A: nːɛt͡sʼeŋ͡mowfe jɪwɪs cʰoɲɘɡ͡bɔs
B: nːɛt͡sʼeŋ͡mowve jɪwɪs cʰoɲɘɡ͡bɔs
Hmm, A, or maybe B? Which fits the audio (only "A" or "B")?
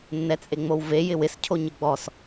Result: B